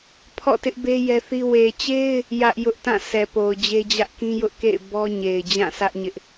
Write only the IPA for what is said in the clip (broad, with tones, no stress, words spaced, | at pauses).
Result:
pʰɔ̰˦˨tɪ˦ʔbe˦ jɛ˦θi˦ we˨t͡ɕe˦ɪ̯ | jä˦ʔjʊ˦ʔ tã˦˨ sɛ˨po˨ʊ̯d͡ʑe˦d͡ʑä˦ʔ kĩ˦jʊ˦ʔkḛ˦˨ɪ̯ bɔ˦ɲe˨ɪ̯ d͡ʑã˦˨ sä˦ʔ ɲɪ˦ʔ